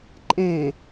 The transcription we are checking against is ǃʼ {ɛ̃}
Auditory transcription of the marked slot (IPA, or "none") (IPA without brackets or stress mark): ɛ̃